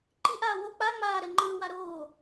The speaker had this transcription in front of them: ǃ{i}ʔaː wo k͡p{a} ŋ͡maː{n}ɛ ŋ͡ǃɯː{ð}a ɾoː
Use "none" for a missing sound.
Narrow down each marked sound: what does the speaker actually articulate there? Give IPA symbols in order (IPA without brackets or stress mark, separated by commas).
i, a, ɾ, w